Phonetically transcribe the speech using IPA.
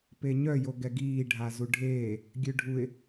p e ɲ œ j o ɡ ɛ ɡ iː ɖʱ a z u ɖʱ eː | ɡʲ ø ɖʱ u ɪ̯

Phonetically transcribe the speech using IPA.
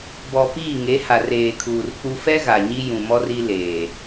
b ɔ˨ p iː˦˨ ŋ e˨˦ h a˨ r eː˨ kʰ uː˨ r k͡p u˦ f ɛ˦ ɣ a˨ ɲ i˦ j ũ˨ m ɔ˦ r i˦ l eː˨

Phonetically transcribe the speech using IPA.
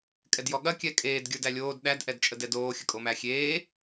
kʼ ɛ d j ɔ ɠ ɐ kʲ ɛ kʼ eː d ɡʲ ə˞ d æ lʲ oː d ɗ æ d ʔ ɛ d t͡ʃʼ ə d ɛ d oː xʲ ə kʼ o m æ xʲ eː

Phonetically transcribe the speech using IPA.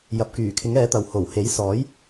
j ɐ˨ p̚ k yː˨˩ kʰ ɪ˨˥ ŋ ɛː˨˥ t̪ ɐ˨ w h o˨˩ w h e˨˥ j s ɔː˨˥ j

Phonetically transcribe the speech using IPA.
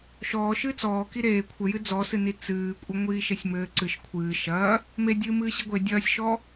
ʃ ɔː ʃ ɨː t͡s ɔː k i ɾ eː kʷʰ ɘ j ɨ d͡z ɔ s ɨ n i t͡s ɨː kʷʼ ɘ ŋʷ iː ʃ e sʲ m ɘː ǀ ɨ ʃ kʷʰ ɨː ʃ ɐː | m e dʲ ɨː m ɨː ɕ i ɡʷ e dʲ ɐː sʲ ʃ ɔ

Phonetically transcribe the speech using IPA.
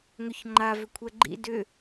ŋ ʏ ç ŋ͡ǃ a v ʏ kʷʰ ɛ ɡ͡ǃ ḭ d ʏ

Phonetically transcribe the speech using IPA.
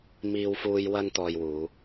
m iː˥ w f uː˥ j w ɐ˥ n t̪ ɔː˧ j w uː˨˧

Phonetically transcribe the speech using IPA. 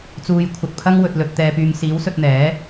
t͡s uː˨ j kʷʰ ɐ˨ t̚ pʰ ɐ˥ ŋ w ɵ˨ t̚ l ɵ˨ t̚ t̪ ɛː˨ p yː˨ ŋ s iː˨˥ w s ɵ˧ t̚ n̪ ɛː˨˥

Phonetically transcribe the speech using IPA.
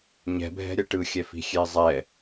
ɲ ɛ̤ bʱ ɛ̤ ɾʲ ʌ ʈ ɯ xʲ ɛ f i̤ xʲ e zˤ ɛ

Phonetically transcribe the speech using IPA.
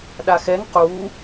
ɗ a x ɛ ŋ q u

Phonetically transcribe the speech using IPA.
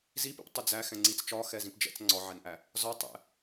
z i p ḭ p tˤ ɪ d͡z æ x ɛ̃ ŋ͡ǀ i t͡s t͡ʃ ɒ x ɛ z ĩ p d͡ʒ ɛ̰ t͡s ŋ͡ǀ ɒ ʕ ɛ n ʔ æ | z ɒ tˤ ɛ̰

